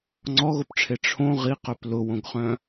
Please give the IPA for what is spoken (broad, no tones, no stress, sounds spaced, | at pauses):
ŋ͡ǀ ɔ ɣ o p ʈ͡ʂʰ e ʈ͡ʂʰ õ ʁ i q œ p l ʊ w õ ɡ χ œ̃